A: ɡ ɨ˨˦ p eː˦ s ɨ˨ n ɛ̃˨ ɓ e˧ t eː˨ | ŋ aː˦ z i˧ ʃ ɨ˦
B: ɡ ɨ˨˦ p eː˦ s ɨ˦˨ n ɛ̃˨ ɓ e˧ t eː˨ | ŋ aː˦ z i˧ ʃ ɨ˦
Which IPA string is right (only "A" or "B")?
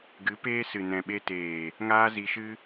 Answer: A